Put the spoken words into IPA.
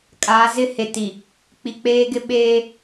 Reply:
kʼ a˨˦ z ɪ˦˨ h e˨ t i˨ | k͡p i˨ k͡p eː˦ ɡ ɪ˦ ɓ eː˦

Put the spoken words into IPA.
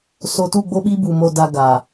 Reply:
s o˨ t u˦˨ ɡ͡b o˦ ɓ i˦ b u˨ m o˨ d a˨ ɡ a˨

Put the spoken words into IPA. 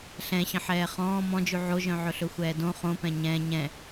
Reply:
ɬ ɛ̃ ɕ ə̃ ħ ɛː χ ɔ̃ː m ɔ̃ d͡ʒ ʉ ʕ o ʒ œ̃ ʕ ɵ ɬ ɵ xʷ ɛː d õ χ õ p ɛ̃ ɲ ɛ̃ ɲ ɛ̃

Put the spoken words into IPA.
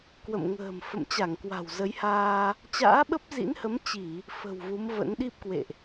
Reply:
k w ə̰˧˨ m ŋ ə̤ː˨˩ m f ə̰˧˨ m t͡ɕ a˧˩ ŋ k w a̤˨˩ w z ə˨˦ j h aː˧ | t͡ɕ a̰ː˧˥ ɓ ə˦˥ p̚ z ḭ˧˥ n h ə˨˦ m t͡ɕ i˧˩˨ | f ə̤˨˩ w v u˨˦ m v ə̰˧˥ n ɗ i˦˥ p̚ k w ḛ˧˨ ʔ

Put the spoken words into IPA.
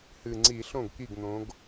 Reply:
h ɨ˨˩ ŋ͡ǀ i˧˩˧ ɬ õ˥˩ ɡ k i˥˩ ɡ n̪ õ˨˦ ɡ

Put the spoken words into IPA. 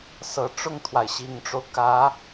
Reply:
s ɤ˨˩ ʈ͡ʂ ʊ˥˩ ŋ t̪ʰ w a˩ ɪ̯ ɕ i˨˩ ŋ ʈ͡ʂ o˦ ʊ̯ k ä˧˥

